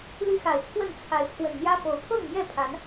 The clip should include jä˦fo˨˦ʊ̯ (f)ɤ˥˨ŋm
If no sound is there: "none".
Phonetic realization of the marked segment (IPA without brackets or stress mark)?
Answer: pʰ